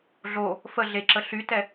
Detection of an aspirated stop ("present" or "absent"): absent